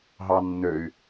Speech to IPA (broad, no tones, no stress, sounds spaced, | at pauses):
ɦ ɑ nː ø y̯